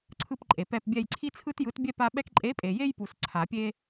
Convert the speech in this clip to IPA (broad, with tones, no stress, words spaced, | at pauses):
ǀʰɯ˦˨pǃʼe˨pɛ˦˨pbʲɛ˦˨j ǀʰi˦t͡sʰɯ˦tjɯ˨˥tbʲɛ˦ pa˦ ɓɛ˦k ǃʼe˨˥pʼe˨je˦jpu˨s ǀʰa˨˩˦pʲe˦